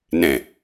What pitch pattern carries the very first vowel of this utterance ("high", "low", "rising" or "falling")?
low